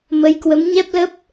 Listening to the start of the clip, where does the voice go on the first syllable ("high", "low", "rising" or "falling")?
rising